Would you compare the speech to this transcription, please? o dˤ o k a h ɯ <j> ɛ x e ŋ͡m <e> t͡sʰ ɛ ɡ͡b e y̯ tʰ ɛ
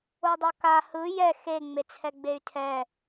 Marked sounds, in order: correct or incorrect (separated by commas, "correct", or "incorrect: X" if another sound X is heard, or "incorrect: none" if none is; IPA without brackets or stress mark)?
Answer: correct, correct